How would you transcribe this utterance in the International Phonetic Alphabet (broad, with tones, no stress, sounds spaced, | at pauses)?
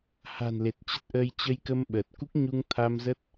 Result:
h a̤˨˩ n l e˨˩ t̚ t͡ɕ ə˦˥ t̚ ʔ əː˧ j t͡ɕ ə˧ j k ə˧ m ɓ əː˨˩ t̚ k u˦˥ k̚ ɲ u˧ ŋ t̪ʰ a˧ m z ə˦˥ t̚